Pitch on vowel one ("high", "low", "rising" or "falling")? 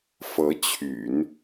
rising